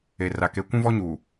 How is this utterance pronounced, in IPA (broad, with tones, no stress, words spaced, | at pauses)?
e˨ra˨ke˨˦ kʷũ˦vɔ˦ɲuː˨